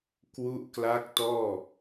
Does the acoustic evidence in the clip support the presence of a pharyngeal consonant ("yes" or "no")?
no